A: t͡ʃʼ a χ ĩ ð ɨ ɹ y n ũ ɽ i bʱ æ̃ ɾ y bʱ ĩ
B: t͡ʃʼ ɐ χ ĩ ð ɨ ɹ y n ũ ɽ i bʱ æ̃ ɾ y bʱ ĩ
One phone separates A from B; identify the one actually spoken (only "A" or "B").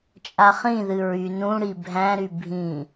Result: A